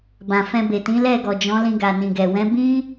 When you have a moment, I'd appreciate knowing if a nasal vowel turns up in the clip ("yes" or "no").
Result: yes